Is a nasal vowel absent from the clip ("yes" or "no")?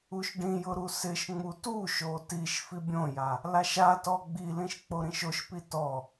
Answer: no